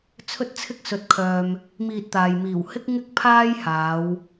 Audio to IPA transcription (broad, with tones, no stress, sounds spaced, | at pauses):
t͡sʰ ɵ˧ t̚ t͡sʰ ɪ˧ k̚ s ɵ˨ t̚ kʰ œː˨ m | m iː˧ t̚ t̪ aː˨ j m iː˨˩ w h ɪ˥ k̚ ŋ ɪ˥ k̚ pʰ aː˥ j h aː˨˧ w